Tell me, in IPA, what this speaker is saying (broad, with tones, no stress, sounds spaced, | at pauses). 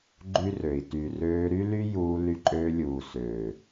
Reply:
ɡ͡ǃ y˦ r ø˨ i̯ t y˨ r øː˧ ɾ y˦ l y˦ j uː˧ l y˧ ǃʼ øː˧ lʲ uː˨ s øː˨